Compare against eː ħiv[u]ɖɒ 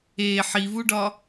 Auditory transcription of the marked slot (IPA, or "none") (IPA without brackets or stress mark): u